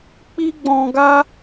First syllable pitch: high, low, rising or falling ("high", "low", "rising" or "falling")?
high